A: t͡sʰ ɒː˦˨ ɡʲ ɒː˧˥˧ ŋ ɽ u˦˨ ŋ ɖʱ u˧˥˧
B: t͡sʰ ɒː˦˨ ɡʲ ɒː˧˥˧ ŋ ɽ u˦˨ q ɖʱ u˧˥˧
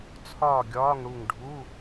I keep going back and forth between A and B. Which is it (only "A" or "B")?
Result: A